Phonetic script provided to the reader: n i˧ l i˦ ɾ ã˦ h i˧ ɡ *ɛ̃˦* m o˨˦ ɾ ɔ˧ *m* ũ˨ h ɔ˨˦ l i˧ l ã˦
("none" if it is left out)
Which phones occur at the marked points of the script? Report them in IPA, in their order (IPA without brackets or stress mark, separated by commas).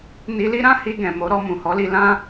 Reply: ɛ̃˨, m